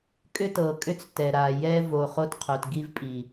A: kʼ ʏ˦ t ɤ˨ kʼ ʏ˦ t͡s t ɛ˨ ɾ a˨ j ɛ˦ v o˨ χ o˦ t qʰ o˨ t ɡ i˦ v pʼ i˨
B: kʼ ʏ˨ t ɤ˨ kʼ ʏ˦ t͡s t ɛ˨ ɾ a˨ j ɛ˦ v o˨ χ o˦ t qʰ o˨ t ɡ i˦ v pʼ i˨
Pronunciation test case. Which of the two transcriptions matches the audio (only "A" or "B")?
A